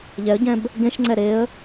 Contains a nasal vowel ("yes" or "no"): yes